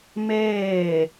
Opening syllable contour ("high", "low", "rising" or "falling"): falling